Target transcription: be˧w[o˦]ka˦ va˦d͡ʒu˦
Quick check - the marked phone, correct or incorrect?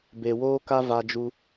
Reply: incorrect: oː˦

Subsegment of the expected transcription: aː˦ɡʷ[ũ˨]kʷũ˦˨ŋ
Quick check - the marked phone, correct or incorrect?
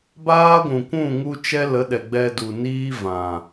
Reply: correct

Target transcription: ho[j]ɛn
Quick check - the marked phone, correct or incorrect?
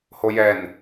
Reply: correct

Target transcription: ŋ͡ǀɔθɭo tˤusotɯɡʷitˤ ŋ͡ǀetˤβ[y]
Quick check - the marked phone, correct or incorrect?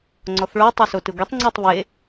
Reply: incorrect: e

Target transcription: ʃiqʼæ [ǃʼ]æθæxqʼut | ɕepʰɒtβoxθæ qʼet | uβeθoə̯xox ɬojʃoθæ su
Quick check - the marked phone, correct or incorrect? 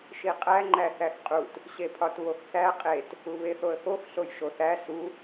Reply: incorrect: ŋ͡ǃ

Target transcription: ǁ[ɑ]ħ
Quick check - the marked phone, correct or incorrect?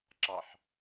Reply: correct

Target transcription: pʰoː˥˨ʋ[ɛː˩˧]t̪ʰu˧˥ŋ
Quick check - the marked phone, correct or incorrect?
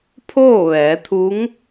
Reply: correct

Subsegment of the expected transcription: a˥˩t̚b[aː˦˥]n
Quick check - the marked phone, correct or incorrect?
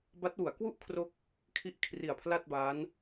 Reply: correct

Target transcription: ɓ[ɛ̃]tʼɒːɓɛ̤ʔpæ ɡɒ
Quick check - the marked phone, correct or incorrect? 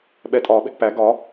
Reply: incorrect: ɛ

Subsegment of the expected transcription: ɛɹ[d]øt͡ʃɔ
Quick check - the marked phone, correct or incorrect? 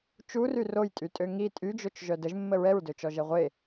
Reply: correct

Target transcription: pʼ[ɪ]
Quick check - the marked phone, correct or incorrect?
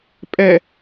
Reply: incorrect: ɛ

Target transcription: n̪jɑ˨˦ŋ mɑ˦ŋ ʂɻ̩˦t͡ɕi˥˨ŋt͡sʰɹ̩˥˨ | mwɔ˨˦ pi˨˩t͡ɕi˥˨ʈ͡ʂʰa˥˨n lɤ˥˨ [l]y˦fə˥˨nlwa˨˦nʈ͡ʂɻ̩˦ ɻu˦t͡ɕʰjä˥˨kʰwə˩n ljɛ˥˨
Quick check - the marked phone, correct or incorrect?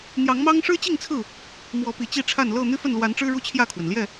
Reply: incorrect: n̪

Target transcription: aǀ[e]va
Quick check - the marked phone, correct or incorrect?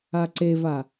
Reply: correct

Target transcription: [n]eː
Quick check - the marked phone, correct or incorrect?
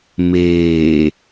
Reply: incorrect: m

